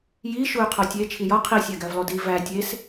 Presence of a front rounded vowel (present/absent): present